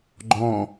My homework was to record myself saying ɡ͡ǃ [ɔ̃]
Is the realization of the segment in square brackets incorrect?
no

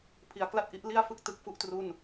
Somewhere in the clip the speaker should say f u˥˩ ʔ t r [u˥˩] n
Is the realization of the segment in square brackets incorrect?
no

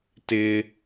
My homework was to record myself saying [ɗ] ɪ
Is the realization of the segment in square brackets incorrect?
yes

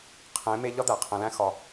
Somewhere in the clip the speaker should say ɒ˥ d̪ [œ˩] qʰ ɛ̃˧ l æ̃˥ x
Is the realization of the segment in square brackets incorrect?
yes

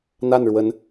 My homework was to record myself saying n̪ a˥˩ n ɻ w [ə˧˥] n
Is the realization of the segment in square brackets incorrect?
no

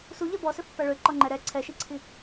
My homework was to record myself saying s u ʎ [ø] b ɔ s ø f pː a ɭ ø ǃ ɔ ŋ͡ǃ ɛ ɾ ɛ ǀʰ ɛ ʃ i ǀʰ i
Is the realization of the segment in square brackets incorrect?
yes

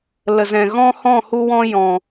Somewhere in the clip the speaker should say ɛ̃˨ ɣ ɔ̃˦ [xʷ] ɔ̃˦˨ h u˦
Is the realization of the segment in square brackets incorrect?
yes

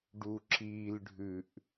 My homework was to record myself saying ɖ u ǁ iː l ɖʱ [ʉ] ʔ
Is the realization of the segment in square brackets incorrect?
no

